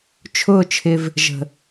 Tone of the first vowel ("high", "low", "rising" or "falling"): falling